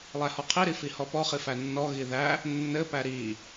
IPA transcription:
lˠ æ h ɔ qʰ i ɾ i f i h ɔ p ɔ χ i f æ nː ɔ ɣ i ð æ | nː ɘ p æ ɾ i

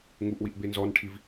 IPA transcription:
ŋ u ʔ w i ʔ b e n z ɔ n ʈʰ i v

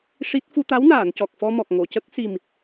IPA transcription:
ʂ i˦˥ t̚ f u˧ t̪ a˧˥ w n aː˨˩˨ n c ɔ˨˩ k̚ f ɔ˧ m ɔ˨˩ k̚ ŋ o˨˩˨ c ə˦˥ k̚ s i˨˩ m

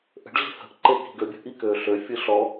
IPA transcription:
ʔ ə̤ ɖ ɮ i̤ h ə̤ ʔ ǃ e k i̤ ɡ ø bʲ ə̤ ʔ i k øː ɬ ø fʲ ɯ ɬ ɔ

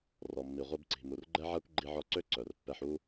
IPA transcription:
r ɔ˩ mː i˩ ʁʷ i˧ b ǀ i̤˩ m u˩ r ɡ͡ǃ ɛ˥ ʕ a˥ kʷ ɡ͡ǃ i˧ ʕ ɔ˧ ǀ ø˥ ǀ œ˩ r pː ɛ˧ ħ u˥

